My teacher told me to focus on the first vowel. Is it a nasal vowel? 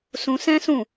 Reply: yes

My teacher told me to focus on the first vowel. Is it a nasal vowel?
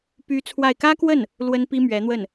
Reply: no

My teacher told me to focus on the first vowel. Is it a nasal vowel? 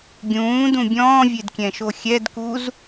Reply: yes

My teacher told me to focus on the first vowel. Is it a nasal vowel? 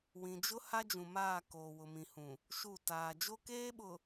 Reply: yes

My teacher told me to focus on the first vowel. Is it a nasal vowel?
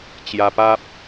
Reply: no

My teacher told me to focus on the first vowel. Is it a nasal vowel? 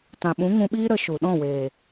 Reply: yes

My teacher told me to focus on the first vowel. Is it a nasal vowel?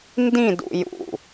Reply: yes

